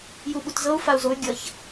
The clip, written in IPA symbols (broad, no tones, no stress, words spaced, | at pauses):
juɓutzɤu̯ fau̯zoy̯ ɡʲʌç